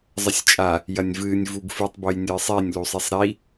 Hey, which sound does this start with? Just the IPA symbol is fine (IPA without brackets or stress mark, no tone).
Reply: zˤ